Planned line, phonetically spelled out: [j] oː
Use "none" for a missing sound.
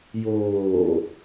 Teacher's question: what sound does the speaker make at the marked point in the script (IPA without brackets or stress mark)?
j